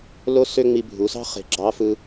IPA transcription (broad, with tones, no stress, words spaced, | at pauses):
lo˥sø˥ŋ͡mi˧ bʱu˩˧sɑ̤˥ χe̤˧ɡ͡ǁɑ˧˥ fɯ˧